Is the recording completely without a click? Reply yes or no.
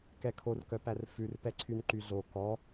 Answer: no